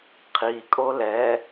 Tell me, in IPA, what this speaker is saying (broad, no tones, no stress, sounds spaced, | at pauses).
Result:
qʰ i kʼ o l ɛ